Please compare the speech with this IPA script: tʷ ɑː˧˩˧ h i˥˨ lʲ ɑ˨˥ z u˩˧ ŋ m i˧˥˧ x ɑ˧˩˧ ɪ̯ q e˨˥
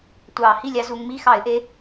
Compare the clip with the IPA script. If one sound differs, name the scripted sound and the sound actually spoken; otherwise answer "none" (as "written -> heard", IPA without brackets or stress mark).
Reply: q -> ʔ